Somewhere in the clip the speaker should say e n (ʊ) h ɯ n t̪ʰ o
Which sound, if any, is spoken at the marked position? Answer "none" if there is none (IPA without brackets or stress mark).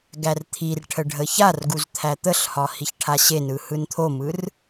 ɯ